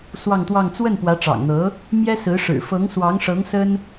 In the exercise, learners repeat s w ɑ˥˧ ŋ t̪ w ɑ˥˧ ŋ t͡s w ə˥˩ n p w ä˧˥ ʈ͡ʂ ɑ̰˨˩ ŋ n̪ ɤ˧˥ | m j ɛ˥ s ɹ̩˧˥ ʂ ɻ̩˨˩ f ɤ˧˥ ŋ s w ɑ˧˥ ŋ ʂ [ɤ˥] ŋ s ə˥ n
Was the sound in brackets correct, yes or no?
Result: no